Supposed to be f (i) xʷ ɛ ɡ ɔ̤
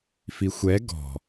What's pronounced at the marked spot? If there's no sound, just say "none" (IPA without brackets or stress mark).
i